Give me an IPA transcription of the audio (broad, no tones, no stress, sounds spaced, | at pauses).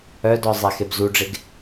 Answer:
œ d ɔ zˤ ɛ x e b z u ɖ͡ʐ e ɡ